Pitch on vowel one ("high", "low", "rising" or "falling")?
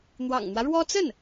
low